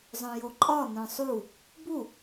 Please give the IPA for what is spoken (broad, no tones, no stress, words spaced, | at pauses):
zˤœ̃joǃʼɒ nœ̃sˤu | bu